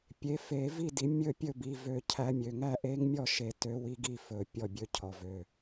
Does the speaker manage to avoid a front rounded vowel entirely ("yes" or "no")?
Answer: no